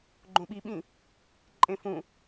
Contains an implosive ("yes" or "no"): yes